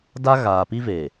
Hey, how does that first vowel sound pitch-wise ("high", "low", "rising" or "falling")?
high